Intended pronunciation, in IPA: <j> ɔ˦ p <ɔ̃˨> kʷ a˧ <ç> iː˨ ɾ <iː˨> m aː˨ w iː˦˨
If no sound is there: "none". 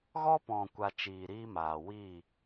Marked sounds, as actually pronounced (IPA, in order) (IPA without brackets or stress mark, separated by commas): ɣ, ɔ̃˨, t͡ʃ, iː˦